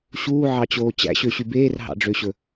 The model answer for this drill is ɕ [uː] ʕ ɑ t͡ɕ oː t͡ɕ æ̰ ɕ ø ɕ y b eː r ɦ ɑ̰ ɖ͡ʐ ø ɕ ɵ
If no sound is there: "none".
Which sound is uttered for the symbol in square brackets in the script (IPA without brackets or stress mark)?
uː